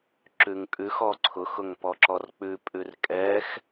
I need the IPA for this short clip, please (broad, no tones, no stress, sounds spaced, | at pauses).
ǁ ʉ ŋ kʼ ʉ x ɔ ǀʰ ʊ x ʊ ŋ p ɔ ǁ ɔ r k͡p ʉ pʼ ʉ r kʼ ɛ x